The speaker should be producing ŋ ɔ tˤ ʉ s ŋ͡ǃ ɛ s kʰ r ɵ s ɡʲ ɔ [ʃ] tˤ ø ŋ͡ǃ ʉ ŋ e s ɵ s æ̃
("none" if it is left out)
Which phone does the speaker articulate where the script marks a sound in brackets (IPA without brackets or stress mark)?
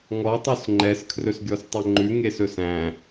s